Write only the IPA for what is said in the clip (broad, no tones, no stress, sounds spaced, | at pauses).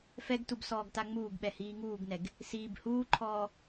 f ɛ ɡ t u b s ɔː ɡ t a ŋ͡m uː ɡ ɓ ɛ h iː ŋ uː ɡ n ɛ ɡ | s iː b h uː ǃʰ ɔː